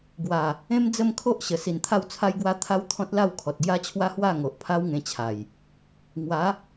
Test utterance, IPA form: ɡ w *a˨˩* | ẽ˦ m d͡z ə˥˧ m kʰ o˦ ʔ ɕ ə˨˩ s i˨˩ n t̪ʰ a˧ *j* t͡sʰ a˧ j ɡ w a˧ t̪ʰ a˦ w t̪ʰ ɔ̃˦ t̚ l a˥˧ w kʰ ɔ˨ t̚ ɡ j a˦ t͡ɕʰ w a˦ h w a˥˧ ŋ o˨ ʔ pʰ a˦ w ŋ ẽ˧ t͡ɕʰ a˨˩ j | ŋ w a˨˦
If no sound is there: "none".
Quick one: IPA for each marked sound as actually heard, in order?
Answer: a˨˩, w

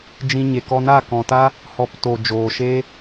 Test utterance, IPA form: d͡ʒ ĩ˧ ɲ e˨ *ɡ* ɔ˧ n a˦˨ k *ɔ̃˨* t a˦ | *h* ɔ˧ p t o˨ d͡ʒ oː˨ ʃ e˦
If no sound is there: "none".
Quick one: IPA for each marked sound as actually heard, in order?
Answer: k, ɔ̃˨, h

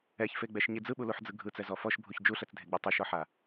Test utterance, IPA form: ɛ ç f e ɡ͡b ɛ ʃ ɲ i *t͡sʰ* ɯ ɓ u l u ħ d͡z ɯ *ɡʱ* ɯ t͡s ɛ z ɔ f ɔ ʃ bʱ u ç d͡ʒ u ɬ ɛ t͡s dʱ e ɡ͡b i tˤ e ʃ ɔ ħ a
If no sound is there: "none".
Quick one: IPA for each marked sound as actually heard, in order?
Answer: d͡z, ɡʱ

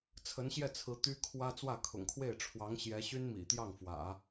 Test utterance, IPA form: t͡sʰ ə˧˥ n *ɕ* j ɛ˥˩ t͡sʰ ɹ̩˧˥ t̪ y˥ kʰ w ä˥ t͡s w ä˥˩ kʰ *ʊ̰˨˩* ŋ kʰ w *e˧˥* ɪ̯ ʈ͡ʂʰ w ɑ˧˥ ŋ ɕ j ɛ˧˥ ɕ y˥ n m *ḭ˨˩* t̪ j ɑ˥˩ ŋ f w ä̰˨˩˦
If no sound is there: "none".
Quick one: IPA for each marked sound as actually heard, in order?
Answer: ɕ, ʊ̰˨˩, e˥˩, ḭ˨˩

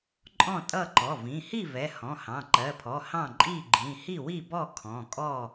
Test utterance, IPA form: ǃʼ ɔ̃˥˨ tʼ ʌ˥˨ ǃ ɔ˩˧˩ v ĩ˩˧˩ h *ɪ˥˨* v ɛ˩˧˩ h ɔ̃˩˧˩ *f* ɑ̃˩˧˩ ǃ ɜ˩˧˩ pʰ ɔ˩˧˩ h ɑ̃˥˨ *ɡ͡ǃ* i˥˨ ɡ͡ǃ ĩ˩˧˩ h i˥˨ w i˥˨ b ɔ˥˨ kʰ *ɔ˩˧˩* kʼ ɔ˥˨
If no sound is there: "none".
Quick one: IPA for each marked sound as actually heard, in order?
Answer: i˥˨, h, ǃʼ, ɔ̃˩˧˩

